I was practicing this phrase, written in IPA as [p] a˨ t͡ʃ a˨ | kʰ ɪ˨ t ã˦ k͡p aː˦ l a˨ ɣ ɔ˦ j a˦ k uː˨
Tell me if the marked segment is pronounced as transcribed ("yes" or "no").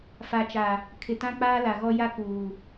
no